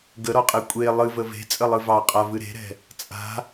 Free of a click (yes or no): yes